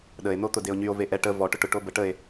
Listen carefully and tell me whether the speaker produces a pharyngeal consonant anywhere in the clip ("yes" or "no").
no